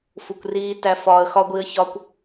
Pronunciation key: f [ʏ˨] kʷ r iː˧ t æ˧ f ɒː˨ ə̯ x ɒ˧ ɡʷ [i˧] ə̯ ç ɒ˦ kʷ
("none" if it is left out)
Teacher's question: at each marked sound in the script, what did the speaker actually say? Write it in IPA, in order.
u˨, i˧

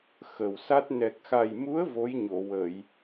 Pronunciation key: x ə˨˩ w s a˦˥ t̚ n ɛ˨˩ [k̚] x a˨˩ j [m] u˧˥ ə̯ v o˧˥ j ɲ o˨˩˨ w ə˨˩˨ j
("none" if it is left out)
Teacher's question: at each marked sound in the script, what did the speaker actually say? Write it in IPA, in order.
k̚, m

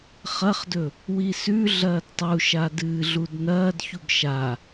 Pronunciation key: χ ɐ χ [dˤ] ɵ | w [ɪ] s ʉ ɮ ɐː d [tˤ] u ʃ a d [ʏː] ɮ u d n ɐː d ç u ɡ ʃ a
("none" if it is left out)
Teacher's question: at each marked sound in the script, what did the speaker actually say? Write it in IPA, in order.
d, i, tˤ, ɨː

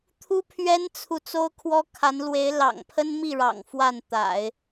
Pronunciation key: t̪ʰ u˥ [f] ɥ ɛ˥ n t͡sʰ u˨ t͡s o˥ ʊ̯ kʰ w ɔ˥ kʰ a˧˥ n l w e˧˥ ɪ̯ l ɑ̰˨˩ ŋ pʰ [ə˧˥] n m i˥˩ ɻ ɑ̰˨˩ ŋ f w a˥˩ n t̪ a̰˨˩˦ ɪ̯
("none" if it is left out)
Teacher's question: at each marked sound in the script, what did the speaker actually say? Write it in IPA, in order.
pʰ, ə˥

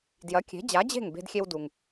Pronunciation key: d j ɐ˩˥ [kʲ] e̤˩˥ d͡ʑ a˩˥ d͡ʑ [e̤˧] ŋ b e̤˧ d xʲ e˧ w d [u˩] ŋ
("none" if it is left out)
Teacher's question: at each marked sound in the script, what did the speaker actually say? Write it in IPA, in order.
kʲ, e̤˥˩, u˩

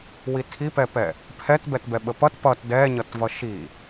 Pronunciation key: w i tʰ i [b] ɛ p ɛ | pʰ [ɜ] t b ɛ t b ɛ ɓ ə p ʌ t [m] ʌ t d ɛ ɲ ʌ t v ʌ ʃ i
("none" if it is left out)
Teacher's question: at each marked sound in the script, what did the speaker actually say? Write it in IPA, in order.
p, ɛ, p

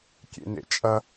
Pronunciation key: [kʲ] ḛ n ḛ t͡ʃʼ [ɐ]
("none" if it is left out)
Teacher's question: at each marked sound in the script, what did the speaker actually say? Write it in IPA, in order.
kʲ, ɐ

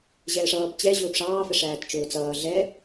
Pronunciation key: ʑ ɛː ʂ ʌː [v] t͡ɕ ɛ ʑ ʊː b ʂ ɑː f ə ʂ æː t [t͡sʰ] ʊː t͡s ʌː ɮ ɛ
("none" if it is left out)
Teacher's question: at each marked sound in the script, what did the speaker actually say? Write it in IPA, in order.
b, t͡ʃ

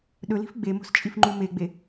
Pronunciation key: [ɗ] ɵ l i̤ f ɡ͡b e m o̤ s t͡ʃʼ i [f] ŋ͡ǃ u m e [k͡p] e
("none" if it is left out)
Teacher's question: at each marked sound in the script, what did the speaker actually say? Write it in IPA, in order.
ɗ, f, ɡ͡b

